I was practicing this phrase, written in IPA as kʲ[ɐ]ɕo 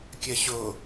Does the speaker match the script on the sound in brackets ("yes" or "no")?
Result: yes